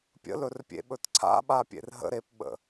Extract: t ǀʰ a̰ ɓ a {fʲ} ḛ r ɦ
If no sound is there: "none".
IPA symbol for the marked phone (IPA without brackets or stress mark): pʲ